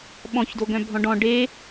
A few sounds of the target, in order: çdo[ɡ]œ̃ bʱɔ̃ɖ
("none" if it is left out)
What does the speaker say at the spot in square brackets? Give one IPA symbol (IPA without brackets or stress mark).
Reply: ɡ